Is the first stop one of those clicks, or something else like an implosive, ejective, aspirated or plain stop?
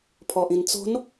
aspirated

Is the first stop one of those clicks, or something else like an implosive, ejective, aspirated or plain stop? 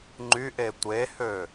click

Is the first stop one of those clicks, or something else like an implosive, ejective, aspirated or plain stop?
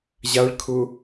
aspirated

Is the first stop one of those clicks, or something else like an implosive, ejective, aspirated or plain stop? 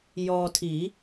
aspirated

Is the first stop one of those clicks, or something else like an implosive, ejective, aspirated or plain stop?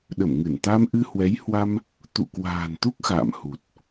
implosive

